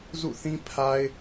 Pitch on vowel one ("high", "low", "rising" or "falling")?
falling